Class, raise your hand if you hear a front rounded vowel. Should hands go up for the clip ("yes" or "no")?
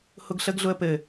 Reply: no